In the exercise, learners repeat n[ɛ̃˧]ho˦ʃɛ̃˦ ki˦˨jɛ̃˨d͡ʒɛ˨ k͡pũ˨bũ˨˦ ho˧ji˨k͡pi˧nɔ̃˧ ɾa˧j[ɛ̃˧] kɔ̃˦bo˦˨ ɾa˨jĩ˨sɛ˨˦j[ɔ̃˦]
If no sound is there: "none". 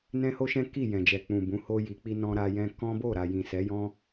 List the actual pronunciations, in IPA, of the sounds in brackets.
ɛ̃˦, ɛ̃˧, ɔ̃˦

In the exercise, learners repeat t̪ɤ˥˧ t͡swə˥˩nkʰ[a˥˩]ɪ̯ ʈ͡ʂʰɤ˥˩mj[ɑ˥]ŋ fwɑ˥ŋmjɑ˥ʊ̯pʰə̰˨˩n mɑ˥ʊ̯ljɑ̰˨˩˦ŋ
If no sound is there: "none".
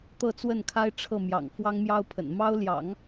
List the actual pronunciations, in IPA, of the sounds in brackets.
a˥, ɑ̰˨˩

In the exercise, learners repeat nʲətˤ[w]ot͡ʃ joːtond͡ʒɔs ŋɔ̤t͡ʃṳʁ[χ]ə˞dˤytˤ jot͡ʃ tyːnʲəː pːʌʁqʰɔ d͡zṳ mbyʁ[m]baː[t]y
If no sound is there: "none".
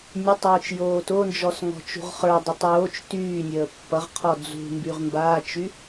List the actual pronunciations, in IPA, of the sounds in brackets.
w, χ, m, t͡ʃ

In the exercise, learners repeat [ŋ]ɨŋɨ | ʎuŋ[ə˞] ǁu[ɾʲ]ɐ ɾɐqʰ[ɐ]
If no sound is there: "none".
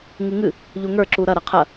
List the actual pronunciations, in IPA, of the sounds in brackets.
ŋ, ə˞, ɾ, ɐ

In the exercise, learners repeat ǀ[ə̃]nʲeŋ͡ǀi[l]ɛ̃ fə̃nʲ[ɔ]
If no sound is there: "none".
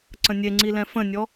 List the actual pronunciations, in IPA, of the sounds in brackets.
ə̃, l, ɔ

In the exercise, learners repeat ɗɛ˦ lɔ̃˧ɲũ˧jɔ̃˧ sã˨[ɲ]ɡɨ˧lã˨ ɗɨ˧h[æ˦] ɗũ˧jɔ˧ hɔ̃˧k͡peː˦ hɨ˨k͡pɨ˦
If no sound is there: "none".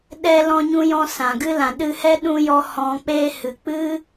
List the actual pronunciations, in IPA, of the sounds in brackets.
none, ɛ˦

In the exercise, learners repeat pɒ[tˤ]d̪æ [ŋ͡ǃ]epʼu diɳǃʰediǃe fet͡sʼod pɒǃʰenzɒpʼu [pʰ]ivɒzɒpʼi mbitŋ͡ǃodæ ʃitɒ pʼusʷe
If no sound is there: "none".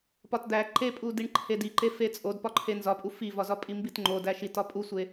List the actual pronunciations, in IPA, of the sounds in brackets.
t, ǃ, f

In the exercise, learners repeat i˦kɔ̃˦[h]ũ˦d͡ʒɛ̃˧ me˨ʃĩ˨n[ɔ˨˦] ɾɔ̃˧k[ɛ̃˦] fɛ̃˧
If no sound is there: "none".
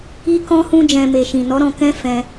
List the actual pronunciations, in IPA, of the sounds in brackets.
h, ɔ˨˦, ɛ̃˦

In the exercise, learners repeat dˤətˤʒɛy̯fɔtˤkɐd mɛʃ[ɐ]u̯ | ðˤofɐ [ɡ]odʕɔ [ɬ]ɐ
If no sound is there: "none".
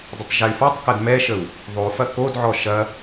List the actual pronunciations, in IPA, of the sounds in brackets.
ə, k, ʃ

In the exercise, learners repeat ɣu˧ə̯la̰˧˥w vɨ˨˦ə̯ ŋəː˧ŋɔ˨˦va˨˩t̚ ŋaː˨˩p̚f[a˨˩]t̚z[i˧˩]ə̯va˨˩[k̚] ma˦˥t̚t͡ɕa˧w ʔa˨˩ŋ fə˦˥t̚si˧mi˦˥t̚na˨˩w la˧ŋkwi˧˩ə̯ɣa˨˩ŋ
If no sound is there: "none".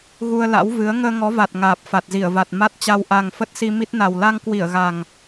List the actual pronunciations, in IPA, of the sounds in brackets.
a˨˩, i˧˩, t̚

